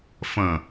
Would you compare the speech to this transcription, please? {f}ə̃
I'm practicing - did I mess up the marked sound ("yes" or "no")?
no